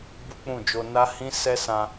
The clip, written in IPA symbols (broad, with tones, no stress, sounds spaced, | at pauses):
b u˦ k͡p ũ˦˨ d͡ʒ o˧ n a˦ h ĩ˦ s ɛ˦ s ã˧